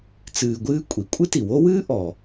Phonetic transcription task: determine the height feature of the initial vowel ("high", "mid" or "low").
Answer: high